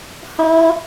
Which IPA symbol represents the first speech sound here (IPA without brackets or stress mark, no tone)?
h